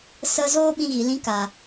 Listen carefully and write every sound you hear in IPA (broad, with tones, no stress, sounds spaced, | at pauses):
s ə˦ z oː˦ ɓ ĩ˧ ɣ i˨ l ĩ˧ k a˨